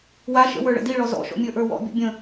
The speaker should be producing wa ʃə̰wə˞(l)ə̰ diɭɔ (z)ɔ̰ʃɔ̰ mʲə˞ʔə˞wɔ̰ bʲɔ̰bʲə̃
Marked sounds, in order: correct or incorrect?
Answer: incorrect: ɭ, correct

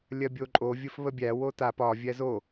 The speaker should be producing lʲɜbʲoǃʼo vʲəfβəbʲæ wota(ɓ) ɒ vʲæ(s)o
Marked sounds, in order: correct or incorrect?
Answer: incorrect: p, incorrect: z

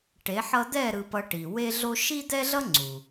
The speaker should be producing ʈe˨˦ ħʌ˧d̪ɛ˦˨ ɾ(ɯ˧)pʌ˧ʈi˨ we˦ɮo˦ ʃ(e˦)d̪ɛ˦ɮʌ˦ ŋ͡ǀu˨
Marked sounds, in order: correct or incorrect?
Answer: correct, incorrect: i˦

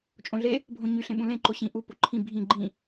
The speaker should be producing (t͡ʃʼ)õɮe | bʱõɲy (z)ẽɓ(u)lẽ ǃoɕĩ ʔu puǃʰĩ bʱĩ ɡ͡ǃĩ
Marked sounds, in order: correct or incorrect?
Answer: correct, incorrect: ɬ, incorrect: ũ

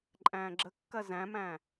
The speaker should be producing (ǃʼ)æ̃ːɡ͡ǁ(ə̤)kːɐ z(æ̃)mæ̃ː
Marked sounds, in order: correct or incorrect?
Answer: correct, incorrect: ə, correct

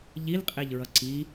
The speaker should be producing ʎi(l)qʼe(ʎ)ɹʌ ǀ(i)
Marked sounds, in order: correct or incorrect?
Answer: correct, correct, correct

